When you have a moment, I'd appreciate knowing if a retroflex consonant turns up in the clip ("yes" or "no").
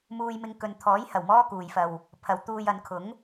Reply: no